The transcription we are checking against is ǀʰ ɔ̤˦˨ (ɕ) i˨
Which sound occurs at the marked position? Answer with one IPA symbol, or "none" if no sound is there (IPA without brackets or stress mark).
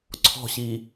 ɕ